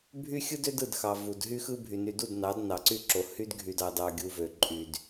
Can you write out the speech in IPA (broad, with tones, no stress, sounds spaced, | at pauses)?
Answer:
bʱ y˦ xʲ ɯ˦ d ø˦ d ɯ˦˨ d x ɑ˨ v u˨ d ɦ y˦ x ɯ˦ bʱ y˨ n y˨ d u˦˨ d n ɑ˨˦ d n ɑ˨ ǀ y˦ ǁ o˨ h y˦ d ɡʱ y˨ d ɑ˨ d ɑ˨ ɡʲ u˨ v ø˨ ǃʼ y˨ d